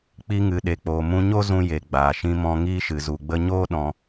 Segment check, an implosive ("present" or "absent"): present